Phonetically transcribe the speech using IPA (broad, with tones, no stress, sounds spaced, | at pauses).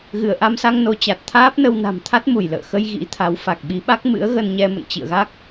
ɣ ɨ˧˩ ə̯ ʔ a˧ m s a˧ ŋ n o˨˦ t͡ɕ a˨˩ t̚ t̪ʰ aː˦˥ p̚ n ə˧ w n a̤˨˩ m t̪ʰ a˦˥ t̚ m u˧˩ j l ə̰ː˧˨ x ə˧ j ɣ ḭ˧˥ t̪ʰ a˨˦ w f a˨˩ k̚ ɓ i˨˦ ɓ a˦˥ k̚ m ɨ̰˧˥ ə̯ ɣ ə˧ n ɲ ɛ˧ m ə̰˧˨ n t͡ɕ ḭ˧˨ ə̯ ɣ a˦˥ k̚